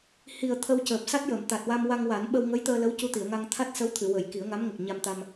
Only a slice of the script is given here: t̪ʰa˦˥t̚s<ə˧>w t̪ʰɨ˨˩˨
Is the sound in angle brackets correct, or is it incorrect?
incorrect